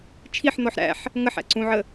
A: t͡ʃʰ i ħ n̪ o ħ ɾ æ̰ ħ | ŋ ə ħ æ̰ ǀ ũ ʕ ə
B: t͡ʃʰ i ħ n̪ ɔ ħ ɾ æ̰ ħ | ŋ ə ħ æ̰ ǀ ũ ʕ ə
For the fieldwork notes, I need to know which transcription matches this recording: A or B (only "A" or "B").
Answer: B